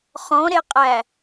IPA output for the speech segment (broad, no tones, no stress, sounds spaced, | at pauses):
χ ɔ̃ ɾ e qʼ æ